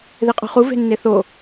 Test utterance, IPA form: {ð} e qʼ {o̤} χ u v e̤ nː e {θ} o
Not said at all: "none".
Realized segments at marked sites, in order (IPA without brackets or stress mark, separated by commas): ð, o̤, θ